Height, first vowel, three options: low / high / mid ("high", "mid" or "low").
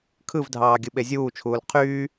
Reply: high